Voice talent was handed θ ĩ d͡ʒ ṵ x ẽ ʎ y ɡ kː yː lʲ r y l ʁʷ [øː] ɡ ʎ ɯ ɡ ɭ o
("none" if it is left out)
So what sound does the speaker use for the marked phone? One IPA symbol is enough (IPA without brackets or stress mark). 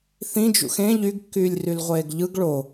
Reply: eː